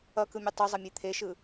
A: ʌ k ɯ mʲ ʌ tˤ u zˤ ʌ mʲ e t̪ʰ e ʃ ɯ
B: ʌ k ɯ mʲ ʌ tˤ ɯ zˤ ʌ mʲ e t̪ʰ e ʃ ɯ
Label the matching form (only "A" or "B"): A